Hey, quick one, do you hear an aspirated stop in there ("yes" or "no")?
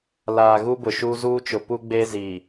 no